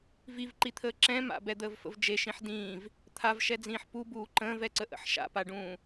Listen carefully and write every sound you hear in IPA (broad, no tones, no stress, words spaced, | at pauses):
vivǃit̪ʰəː ǁɛ̃ ma̰bɛd̪əːvfə̰v d͡ʒeʃĩħ dĩːv | t̪ʰavʃɛd͡zĩːħ pubuː ǃə̃ːvɛǀəʔə̰ħ ʃa̰paɖũː